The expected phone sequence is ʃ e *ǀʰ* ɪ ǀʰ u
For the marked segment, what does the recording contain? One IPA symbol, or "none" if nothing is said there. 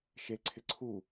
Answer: ǀʰ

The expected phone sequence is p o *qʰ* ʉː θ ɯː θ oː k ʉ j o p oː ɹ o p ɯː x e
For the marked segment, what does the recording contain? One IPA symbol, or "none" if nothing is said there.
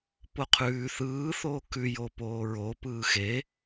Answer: qʰ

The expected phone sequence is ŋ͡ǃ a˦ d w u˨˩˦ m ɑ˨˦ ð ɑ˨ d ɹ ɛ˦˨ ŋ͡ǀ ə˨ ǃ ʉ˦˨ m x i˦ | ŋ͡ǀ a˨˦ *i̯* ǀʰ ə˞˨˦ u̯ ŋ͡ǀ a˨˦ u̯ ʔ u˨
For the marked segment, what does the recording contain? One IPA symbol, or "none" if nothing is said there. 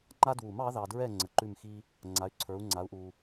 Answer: y̯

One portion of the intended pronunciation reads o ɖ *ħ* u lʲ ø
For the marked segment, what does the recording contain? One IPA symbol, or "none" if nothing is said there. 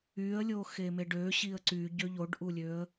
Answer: ʔ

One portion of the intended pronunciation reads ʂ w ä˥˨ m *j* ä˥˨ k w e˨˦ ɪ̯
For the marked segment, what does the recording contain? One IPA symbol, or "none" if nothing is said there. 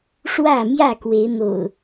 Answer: j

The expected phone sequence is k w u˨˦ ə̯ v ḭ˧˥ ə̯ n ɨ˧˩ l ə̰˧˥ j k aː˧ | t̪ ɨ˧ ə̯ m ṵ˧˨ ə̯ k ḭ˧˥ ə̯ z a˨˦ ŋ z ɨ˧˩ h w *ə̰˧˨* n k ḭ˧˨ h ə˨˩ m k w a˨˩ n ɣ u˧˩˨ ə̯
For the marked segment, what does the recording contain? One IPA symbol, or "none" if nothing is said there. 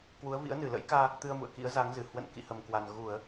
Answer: ə̰˧˨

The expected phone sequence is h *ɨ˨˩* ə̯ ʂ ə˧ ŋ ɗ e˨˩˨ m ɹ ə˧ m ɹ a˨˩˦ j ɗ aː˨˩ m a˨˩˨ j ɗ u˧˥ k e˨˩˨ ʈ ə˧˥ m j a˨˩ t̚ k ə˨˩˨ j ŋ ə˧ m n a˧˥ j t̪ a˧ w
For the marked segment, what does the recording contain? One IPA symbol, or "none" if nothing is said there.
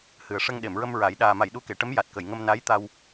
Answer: ɨ˨˩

